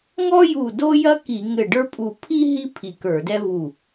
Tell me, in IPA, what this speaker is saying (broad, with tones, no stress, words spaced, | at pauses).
ŋɔ˥ju˧˩ do˥jɐ˥ki˧˩˧ ŋɘ˧˩ɖə˞˥pʼu˧˩ pʰi˥ ɦi˥ pʰi˧˩kə˞˧˩˧dɛ˥vu˧˩